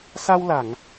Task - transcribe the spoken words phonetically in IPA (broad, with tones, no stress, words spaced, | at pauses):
sa˧wla˨˩˨ŋ